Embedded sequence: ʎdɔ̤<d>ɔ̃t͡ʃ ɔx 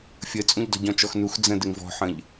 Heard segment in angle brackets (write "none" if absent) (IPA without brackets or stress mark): ɟ